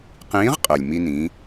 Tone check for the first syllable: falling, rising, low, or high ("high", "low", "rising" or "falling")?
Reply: rising